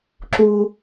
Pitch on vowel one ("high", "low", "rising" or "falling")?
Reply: high